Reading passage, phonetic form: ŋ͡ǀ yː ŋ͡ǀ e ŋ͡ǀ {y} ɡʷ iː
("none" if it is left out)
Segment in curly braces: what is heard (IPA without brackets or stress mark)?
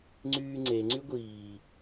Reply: y